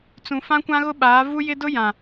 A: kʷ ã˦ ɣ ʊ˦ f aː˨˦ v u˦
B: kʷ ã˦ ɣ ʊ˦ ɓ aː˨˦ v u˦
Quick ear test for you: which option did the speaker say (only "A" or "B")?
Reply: B